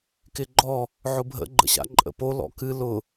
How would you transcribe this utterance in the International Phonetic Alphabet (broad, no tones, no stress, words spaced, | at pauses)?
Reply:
kɪɡ͡ǃɔ | ʕʊbʱə̰ ɡ͡ǃə̰ɕa̰ǃʼə̰po lɔ̰kɨ lʊ